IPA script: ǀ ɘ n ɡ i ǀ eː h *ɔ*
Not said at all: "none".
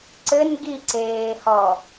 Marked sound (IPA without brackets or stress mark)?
ɔ